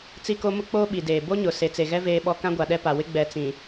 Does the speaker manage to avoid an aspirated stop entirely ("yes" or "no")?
yes